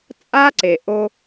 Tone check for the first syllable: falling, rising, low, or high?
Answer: high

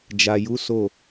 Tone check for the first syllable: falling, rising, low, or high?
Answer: low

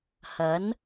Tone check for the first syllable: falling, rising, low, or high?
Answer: rising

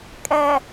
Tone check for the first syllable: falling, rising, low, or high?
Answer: low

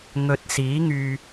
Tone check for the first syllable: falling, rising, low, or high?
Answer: low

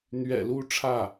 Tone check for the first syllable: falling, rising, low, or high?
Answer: low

